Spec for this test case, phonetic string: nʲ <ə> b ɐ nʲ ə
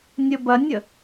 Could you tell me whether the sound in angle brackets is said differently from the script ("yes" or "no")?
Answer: no